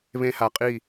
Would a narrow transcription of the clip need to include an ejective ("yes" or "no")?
yes